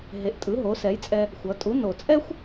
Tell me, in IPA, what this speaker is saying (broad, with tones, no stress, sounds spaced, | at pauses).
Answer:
ɦ e˩˥ ʔ tʼ ɯ˩˥ ɦ o˩˥ s ɛ˩˥ j t͡sʼ ɛ˧ | xʷ ʌ˩˥ tʼ u˩˥ n o˨˩ t͡sʼ ɛ˥ xʷ